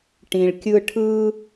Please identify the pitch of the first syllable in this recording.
low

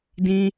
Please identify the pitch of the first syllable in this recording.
high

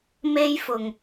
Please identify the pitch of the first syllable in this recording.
high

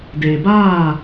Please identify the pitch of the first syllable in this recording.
low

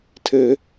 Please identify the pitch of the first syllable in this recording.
low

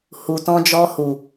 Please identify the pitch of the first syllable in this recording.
low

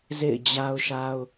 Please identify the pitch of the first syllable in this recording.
falling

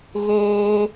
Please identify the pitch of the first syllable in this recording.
high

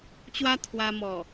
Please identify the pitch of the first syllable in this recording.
high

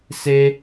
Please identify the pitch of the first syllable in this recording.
high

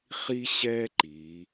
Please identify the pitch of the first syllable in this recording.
high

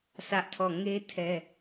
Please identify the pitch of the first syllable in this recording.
high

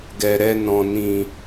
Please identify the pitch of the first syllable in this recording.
low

